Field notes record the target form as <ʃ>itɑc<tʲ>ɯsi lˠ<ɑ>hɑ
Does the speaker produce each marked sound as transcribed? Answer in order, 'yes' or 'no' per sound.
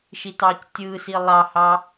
yes, yes, yes

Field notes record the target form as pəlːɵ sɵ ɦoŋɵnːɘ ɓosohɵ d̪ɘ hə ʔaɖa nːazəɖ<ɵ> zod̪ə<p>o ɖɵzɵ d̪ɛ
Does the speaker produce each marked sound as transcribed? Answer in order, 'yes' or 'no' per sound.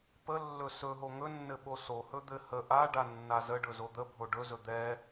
yes, no

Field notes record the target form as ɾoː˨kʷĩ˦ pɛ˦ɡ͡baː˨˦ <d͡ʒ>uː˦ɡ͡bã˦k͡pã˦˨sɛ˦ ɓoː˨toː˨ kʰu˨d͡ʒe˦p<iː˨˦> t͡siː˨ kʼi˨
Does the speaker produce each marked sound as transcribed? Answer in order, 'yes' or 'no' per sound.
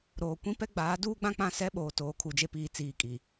no, no

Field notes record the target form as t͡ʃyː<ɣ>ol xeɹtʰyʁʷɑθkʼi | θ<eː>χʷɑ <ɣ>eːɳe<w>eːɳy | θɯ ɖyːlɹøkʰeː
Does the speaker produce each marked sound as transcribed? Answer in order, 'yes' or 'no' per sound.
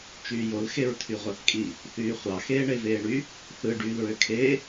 no, no, no, no

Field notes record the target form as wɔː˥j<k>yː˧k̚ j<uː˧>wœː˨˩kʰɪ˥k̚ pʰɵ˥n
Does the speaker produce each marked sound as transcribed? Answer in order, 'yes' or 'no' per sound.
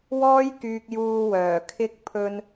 yes, yes

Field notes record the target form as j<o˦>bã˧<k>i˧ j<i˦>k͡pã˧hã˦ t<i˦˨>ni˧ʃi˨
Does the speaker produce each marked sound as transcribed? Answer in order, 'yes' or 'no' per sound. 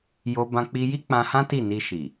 no, no, yes, yes

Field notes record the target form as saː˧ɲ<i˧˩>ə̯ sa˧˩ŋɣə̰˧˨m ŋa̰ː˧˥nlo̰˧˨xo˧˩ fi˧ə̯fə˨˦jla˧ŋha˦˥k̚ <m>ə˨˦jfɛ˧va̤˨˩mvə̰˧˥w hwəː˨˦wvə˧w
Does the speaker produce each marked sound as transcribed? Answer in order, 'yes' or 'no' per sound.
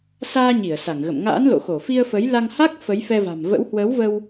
yes, no

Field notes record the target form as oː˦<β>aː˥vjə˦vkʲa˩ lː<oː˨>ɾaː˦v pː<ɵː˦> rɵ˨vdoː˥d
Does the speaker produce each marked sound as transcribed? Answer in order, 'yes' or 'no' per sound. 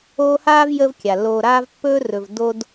no, yes, yes

